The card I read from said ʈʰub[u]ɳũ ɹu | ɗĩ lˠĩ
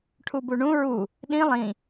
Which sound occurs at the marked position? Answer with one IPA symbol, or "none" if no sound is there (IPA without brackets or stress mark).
u